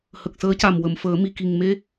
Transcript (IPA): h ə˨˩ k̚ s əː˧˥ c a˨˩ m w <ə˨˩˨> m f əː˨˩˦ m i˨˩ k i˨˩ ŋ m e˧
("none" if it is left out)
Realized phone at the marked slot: ə˨˩˨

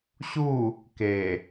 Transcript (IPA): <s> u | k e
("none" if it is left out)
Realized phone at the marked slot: ɕ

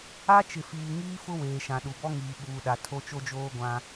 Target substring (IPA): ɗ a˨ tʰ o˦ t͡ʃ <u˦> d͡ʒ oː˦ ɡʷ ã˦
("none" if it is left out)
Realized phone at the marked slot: o˦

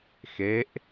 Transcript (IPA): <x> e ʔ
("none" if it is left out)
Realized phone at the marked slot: x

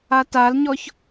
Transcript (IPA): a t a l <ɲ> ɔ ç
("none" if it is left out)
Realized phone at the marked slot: ɲ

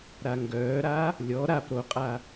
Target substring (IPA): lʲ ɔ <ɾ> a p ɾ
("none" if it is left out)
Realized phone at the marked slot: ɾ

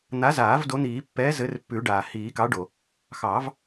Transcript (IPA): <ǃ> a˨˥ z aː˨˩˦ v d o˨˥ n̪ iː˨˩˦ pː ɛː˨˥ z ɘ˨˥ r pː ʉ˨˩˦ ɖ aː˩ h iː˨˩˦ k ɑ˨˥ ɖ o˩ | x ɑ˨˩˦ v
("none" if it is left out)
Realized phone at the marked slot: n̪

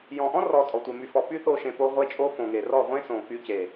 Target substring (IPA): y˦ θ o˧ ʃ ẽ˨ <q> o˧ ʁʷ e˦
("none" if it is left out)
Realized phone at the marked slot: p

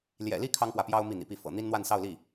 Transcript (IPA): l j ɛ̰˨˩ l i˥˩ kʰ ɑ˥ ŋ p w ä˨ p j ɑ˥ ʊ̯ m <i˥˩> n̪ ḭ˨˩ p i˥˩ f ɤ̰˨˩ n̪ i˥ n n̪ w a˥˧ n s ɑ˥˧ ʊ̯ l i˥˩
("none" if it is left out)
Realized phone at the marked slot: i˥˩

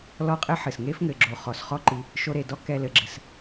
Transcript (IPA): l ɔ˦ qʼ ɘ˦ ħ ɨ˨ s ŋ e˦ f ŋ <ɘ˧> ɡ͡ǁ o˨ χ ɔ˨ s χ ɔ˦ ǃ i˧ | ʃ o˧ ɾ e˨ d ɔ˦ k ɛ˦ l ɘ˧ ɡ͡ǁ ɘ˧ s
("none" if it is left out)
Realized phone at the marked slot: ɘ˨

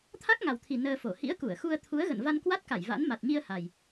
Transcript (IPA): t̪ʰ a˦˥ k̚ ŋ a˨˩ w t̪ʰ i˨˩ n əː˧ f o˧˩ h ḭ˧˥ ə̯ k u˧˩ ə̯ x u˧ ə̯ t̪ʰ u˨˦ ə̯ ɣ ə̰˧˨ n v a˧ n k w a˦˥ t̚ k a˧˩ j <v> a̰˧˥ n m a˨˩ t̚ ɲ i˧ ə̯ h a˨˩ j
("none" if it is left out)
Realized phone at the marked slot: v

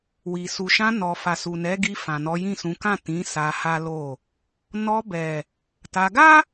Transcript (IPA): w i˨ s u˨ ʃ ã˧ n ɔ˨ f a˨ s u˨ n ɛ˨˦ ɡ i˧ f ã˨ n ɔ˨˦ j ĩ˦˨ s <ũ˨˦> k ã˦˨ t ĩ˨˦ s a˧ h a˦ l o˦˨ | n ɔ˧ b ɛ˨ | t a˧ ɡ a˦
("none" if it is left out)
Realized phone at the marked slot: ũ˨˦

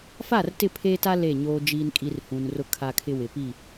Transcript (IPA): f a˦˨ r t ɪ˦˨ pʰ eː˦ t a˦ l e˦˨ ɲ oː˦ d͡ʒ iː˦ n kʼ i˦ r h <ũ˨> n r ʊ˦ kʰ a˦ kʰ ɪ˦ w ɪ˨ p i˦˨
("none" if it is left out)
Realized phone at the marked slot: ũ˨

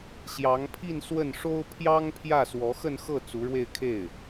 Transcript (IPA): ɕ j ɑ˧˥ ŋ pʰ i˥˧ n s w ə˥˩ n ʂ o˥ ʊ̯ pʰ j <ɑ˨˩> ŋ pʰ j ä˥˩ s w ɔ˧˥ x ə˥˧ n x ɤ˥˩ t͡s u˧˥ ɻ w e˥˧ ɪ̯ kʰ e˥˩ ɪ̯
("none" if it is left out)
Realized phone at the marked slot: ɑ˥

